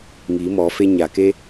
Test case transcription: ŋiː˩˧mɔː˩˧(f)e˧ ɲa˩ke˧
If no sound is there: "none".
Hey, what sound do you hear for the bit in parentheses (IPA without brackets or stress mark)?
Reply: f